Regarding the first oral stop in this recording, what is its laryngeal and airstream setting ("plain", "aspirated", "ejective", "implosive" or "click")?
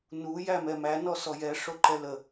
click